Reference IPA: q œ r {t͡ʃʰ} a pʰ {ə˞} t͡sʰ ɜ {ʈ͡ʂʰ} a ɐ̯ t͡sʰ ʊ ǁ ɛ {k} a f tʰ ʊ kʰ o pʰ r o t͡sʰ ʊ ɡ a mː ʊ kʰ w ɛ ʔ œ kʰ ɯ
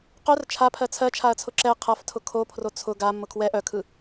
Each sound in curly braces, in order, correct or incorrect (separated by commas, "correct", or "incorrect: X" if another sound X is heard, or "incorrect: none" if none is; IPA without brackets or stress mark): correct, incorrect: ɜ, incorrect: t͡ʃʰ, incorrect: qʰ